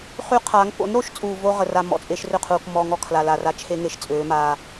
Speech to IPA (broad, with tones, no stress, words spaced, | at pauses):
χy˦qʰa˨˦ŋ po̰˨˦nɾo˧ʃt͡sʼuː˨ vo˦ ʁə˨ra˧ mɔ̰˨t͡sʼe˧ʃrʏ˦˨ qʰuː˨kmɔː˧ŋɔ˧ kʰla˨la˨ra˧ t͡ʃʰe˦ŋe˨ʃ t͡sʼøː˨˦maː˧